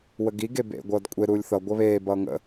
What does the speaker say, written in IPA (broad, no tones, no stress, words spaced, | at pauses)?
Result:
wəɡi ɡebḛ ɡʷʌːdkʷʼe ɾuːlʲθʌ ɡʷʌβeː bʌːŋə̰